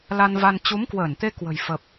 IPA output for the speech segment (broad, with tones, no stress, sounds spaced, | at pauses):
l a˧ n v a˧ n t͡ɕ u˨˦ m k w əː˧˩ n t̪ e˧ k w ə̤˨˩ j f ə˨˩ p̚